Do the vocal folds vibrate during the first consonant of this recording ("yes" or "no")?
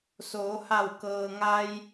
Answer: no